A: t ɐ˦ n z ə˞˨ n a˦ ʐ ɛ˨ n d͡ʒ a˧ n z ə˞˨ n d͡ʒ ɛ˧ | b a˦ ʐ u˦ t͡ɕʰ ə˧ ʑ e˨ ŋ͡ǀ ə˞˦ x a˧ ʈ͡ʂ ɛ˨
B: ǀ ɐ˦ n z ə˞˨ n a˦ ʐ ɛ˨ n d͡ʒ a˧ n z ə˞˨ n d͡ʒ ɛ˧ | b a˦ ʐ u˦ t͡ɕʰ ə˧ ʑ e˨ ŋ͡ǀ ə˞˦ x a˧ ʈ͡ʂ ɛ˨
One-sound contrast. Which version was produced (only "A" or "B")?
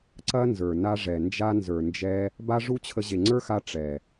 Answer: B